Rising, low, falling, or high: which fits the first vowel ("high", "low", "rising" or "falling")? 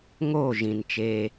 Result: falling